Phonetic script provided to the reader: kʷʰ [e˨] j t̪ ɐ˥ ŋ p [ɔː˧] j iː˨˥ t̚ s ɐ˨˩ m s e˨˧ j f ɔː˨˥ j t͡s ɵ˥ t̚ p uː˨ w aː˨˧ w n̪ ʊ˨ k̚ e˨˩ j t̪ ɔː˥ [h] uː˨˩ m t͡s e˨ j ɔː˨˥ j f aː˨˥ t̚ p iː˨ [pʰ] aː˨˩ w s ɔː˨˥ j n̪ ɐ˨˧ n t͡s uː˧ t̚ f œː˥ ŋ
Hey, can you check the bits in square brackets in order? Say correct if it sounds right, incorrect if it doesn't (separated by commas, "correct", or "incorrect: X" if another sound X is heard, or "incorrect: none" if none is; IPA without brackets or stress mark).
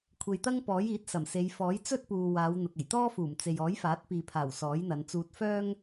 correct, incorrect: ɔː˨˥, incorrect: f, correct